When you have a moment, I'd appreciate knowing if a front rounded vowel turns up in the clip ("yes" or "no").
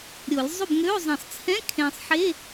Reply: yes